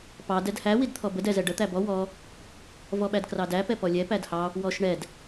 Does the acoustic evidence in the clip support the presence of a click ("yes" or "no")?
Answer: no